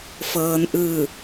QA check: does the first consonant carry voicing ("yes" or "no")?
no